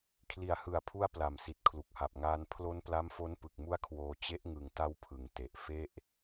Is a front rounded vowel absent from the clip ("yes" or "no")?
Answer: yes